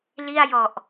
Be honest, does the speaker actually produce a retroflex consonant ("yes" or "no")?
no